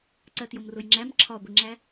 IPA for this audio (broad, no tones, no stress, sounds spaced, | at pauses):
ǀ ɜ t j ʊ m r ʊ j ŋ͡ǁ æ m ǁʰ ɒ ɡʷ ɪ ŋ͡ǁ æ